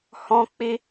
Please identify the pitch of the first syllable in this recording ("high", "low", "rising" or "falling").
high